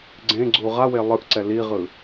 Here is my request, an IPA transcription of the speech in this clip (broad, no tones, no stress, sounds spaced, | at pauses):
ɡ͡ǀ ẽ ɡ͡ǀ u ʁ a w e lˠ ɯ ʔ ǀ ɛ l i ʁ ɯ